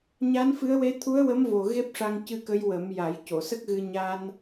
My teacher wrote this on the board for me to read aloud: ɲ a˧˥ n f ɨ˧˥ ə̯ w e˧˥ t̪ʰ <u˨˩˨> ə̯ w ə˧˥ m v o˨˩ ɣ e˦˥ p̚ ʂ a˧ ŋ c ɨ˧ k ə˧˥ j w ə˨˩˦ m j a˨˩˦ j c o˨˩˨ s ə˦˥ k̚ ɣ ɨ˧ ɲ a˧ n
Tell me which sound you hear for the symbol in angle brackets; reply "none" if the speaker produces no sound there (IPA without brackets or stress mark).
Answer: u˧˥